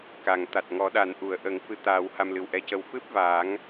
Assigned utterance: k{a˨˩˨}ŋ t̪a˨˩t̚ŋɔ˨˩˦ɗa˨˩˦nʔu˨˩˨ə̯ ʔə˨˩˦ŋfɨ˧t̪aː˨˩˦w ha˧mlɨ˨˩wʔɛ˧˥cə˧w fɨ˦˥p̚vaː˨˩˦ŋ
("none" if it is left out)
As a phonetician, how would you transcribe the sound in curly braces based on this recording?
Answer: a˨˩˨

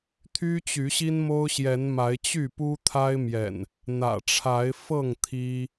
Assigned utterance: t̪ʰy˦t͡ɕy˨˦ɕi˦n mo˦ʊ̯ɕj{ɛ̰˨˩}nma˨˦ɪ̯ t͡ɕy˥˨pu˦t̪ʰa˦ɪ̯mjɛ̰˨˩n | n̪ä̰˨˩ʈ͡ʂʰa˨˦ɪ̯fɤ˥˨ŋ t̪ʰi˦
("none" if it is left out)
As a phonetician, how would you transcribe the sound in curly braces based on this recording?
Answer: ɛ˨˦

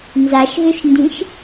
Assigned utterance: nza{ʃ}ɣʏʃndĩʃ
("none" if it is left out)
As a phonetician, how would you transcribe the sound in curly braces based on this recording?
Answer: ʃ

